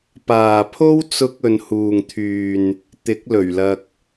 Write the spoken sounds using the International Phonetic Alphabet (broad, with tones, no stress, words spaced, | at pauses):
paː˨pʰo˥w t͡sʊ˧k̚ ɵ˨nhuː˨ŋt̪ʰyː˨n | t̪ɪ˨˥k̚lɵ˨˩ɥlɐ˧k̚